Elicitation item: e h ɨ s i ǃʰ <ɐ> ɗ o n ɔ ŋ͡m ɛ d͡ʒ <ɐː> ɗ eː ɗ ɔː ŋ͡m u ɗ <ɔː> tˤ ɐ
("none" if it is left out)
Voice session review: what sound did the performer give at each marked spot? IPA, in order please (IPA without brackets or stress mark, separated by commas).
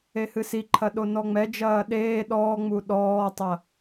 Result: ɐ, ɐː, ɔː